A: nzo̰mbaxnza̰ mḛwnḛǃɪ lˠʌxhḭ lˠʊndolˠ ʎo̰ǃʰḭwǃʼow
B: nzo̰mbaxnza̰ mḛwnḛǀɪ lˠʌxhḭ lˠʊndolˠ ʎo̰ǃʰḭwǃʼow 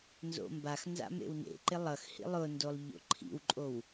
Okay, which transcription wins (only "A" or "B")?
A